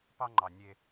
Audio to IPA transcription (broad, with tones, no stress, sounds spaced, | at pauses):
p ɑ˦ ŋ͡ǃ ɑ˨ nʲ e˦